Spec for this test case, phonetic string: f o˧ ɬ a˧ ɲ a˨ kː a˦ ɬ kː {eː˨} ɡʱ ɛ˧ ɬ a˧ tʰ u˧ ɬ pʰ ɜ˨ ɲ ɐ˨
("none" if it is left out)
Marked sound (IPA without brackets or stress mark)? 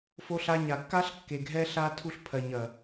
e˨